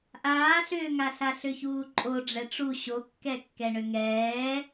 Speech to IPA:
ʔ aː ɬ ʏː ŋ a ɬ a ɬ ʏ ç uː ǃʼ o ɖ͡ʐ ɛ ʈ͡ʂ u ɕ o kː ɛ kː ɛ ɳ ʏ ŋ ɛː

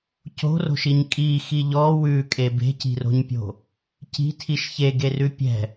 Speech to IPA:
c o̤ r o̤ ʃ i ɲ kʼ i x i ʎ ɔ w ʉ kʼ e b e̤ c i̤ r o̤ ɲ pʲ o̤ | c i̤ tʰ i ʃ ç e ɡ e r ʉ pʲ ɛ̤

